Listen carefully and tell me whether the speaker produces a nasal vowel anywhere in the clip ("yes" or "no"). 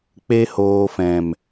yes